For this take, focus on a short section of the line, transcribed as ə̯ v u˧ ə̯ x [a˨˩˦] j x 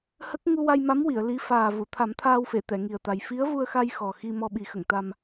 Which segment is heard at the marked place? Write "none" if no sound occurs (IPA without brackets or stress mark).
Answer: a˧